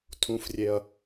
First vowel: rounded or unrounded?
rounded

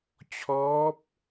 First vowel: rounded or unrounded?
rounded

